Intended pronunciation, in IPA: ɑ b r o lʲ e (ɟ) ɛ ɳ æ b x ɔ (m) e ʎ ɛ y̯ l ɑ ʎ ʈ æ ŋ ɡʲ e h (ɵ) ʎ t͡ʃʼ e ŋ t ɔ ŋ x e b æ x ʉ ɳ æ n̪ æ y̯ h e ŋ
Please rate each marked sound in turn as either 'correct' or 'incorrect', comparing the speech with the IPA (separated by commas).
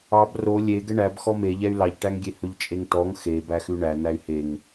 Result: incorrect, correct, correct